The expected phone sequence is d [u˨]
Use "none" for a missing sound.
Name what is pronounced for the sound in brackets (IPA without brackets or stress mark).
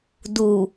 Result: u˨